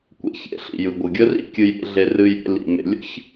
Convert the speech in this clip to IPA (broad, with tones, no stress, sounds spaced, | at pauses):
kʷ ḛ˩ ç ḛ˨ ɬ ḭ˩ j ɯ˩ ɡʷ ɯ˩ ɡʲ ə˦ r ḭ˦ kʲ ɨ˨ j ɾʲ ḛ˨ ɮ e˨ r ɨ˨ j ɾʲ ḛ˨ l ḭ˩ m ḛ˨ lʲ ə̰˥ ç